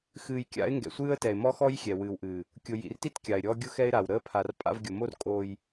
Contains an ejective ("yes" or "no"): yes